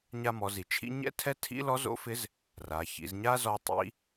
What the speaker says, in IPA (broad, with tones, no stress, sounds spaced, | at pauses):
ɲ a˧ m ɔ˩˧ z i˩ t͡ʃʰ ḭ˥ ɲ ɛ̰˥ tʰ ɛ˥ tʰ ḭ˥ l ɔ˧˥ z o̰˧˥ f ɪ˧˥ z | r a˩˧ ç ḭ˩˧ z ɲ a˥ z ɔ˧˥ tˤ ḭ˧˥